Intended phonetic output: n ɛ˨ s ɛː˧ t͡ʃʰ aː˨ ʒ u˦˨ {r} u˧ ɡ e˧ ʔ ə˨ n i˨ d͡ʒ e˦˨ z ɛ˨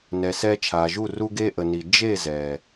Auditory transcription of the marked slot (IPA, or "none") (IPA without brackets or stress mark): r